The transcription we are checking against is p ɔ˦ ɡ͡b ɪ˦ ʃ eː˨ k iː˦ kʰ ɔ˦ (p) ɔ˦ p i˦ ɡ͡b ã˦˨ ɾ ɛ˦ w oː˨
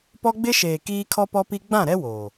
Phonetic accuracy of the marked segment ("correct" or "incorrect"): correct